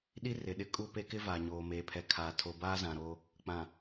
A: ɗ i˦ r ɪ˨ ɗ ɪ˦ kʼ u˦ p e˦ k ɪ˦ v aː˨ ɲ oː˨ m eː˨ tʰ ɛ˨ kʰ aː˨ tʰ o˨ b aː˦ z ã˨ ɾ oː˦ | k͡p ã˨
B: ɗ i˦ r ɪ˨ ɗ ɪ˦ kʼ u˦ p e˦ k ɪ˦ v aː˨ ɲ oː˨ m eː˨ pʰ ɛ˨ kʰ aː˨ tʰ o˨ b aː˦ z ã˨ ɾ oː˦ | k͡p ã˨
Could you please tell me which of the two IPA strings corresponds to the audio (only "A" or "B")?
B